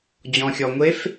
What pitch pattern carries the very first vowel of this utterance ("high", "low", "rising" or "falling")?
low